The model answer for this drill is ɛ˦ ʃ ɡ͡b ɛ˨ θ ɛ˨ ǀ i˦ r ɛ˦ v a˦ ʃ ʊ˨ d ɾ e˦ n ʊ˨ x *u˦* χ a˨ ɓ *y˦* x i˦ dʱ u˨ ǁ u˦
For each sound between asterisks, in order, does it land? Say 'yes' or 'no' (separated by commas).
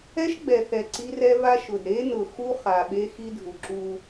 yes, no